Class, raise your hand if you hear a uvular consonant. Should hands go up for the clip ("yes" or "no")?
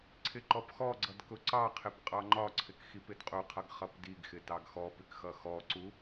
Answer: yes